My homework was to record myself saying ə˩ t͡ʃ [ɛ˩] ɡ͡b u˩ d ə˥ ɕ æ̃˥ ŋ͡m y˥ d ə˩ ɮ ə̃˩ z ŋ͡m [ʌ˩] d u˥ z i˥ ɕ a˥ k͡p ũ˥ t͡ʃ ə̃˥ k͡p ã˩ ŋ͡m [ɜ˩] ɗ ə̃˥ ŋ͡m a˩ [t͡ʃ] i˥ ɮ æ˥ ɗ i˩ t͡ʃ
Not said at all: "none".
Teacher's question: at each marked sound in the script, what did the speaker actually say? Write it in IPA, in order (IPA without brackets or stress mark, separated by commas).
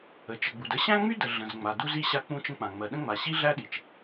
ə˩, a˩, ɜ˩, ɕ